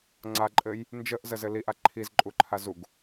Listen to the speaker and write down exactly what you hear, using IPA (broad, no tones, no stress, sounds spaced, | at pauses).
ŋ͡ǀ a ǃʼ ɘ j | n d͡ʒ ə ʔ z ə z ɘ l i ʔ a ǃʰ i z ǃʼ u ǃʰ a z u ɡ